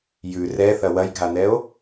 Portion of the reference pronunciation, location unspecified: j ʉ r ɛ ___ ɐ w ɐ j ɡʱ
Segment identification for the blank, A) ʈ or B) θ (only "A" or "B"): B